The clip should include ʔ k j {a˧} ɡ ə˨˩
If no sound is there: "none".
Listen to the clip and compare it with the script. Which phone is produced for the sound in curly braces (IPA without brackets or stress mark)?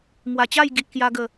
a˧